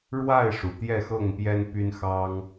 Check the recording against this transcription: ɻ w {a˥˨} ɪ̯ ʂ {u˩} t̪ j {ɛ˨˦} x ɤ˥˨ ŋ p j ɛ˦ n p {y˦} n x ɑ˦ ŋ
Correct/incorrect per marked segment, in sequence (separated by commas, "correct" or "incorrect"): correct, correct, incorrect, correct